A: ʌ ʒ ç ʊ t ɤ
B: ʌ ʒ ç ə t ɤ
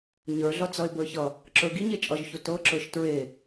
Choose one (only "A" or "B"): A